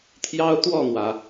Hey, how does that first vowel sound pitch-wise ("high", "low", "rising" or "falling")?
high